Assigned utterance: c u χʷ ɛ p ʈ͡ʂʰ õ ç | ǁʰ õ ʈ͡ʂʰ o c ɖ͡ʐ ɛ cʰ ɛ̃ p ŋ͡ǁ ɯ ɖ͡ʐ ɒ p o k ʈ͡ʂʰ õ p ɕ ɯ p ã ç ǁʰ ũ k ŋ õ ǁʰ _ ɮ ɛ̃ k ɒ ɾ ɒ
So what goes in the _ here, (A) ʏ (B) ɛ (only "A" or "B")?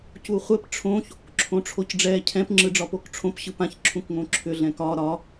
A